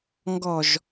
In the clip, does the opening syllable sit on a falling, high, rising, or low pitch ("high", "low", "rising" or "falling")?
low